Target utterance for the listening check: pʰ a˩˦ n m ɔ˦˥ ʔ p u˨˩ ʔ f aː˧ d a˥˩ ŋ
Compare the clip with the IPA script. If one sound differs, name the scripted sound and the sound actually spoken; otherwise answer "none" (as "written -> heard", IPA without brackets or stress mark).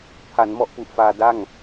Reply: none